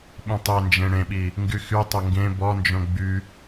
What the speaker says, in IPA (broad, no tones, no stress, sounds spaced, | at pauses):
ɓ ĩ tˤ e n d͡ʒ ẽ ɽ ẽ ɓ i | ŋ ɡ y x y tˤ ə ŋ ɡ ẽ b ɔ n d͡ʒ õ ɡ͡b y